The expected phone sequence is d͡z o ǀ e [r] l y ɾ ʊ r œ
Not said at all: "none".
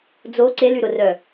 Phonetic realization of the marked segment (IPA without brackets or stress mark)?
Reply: none